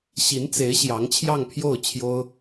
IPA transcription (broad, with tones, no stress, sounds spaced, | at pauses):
ɕ i˧˥ n t͡s e˧˥ ɪ̯ ɕ j ɑ˧˥ ŋ t͡ɕʰ j ɑ˥˧ ŋ pʰ j o˥˩ ʊ̯ t͡ɕʰ j o˥ ʊ̯